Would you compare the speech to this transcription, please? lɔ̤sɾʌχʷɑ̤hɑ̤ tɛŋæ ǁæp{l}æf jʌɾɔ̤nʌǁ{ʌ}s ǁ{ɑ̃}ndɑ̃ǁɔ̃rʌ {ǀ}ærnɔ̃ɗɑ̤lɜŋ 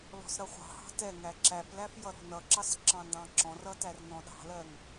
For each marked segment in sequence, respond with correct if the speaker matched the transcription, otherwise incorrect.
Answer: correct, incorrect, correct, incorrect

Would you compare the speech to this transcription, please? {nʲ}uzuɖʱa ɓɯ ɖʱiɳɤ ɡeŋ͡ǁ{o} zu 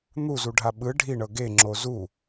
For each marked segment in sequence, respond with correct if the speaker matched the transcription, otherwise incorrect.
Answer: incorrect, correct

